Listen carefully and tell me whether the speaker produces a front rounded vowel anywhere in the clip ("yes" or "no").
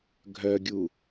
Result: yes